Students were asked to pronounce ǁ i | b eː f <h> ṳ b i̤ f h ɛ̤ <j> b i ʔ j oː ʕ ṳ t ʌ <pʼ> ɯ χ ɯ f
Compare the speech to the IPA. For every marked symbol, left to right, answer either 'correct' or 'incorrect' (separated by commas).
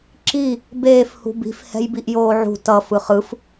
correct, correct, incorrect